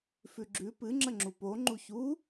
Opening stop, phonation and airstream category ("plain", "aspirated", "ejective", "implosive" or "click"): click